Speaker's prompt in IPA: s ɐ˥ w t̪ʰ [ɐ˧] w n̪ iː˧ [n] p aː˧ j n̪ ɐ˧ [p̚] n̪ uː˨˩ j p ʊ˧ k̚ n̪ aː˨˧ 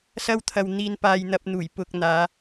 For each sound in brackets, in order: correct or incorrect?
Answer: correct, correct, correct

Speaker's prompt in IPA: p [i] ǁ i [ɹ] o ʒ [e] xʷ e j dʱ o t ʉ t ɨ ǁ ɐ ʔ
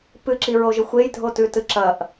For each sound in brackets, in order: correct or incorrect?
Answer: incorrect: ɨ, correct, incorrect: ɨ

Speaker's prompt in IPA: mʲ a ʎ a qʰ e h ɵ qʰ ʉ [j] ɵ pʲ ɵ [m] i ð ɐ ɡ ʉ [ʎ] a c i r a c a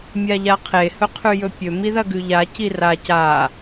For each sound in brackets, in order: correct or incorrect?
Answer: correct, correct, correct

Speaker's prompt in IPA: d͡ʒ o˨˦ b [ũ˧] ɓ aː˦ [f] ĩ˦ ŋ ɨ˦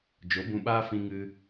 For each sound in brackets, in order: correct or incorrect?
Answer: correct, correct

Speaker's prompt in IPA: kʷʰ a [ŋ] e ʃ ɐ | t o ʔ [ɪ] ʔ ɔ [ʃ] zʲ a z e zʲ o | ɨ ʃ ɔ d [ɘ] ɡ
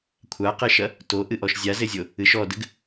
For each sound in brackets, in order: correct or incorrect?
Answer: incorrect: q, incorrect: ɨ, correct, correct

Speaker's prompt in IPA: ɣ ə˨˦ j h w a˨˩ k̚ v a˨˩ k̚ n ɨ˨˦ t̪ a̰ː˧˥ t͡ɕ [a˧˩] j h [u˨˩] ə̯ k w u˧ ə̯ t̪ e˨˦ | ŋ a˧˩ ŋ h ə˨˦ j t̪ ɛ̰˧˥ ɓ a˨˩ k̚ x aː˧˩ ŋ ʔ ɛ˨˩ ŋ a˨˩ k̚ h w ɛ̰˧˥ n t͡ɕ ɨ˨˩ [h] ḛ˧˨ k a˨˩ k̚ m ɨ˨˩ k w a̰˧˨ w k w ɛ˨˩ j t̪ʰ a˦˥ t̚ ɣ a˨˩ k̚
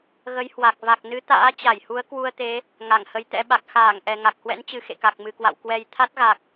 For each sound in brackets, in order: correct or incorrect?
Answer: correct, incorrect: u˨˦, incorrect: x

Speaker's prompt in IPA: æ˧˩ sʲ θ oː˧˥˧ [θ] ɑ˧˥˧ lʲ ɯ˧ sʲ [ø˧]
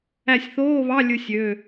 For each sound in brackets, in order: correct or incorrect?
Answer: incorrect: β, incorrect: ø˩˧˩

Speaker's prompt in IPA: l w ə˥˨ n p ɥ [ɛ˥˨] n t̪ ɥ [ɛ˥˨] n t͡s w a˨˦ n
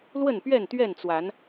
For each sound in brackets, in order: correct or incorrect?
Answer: correct, correct

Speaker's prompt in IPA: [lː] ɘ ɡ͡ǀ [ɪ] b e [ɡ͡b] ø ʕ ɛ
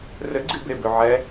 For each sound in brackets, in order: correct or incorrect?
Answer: incorrect: r, incorrect: i, incorrect: b

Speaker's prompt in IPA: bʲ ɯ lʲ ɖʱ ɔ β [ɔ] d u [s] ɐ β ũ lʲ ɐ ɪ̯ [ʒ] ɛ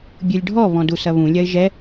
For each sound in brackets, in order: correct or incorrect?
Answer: incorrect: ɔ̃, correct, correct

